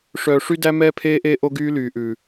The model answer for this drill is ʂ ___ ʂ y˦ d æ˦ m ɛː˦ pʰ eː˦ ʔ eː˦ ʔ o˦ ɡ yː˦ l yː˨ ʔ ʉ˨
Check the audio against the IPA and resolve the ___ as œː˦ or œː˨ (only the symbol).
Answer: œː˨